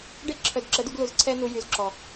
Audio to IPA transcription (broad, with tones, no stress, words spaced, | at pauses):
ɖe˦ǁʰœ˨dǁə˨˦du˧ɡ lu˨zǀʰɛ˧nu˨jy˨z ǁɔ˨